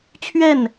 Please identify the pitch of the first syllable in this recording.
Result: falling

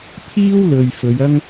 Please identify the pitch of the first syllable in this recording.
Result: high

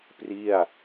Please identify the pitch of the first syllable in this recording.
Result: falling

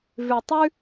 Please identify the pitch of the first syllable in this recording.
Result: low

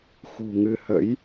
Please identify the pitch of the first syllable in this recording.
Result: low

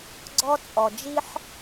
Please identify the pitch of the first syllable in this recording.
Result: high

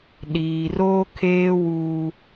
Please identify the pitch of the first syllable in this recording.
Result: low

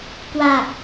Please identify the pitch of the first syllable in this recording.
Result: low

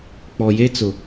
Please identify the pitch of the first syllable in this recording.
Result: low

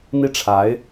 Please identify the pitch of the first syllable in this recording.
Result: falling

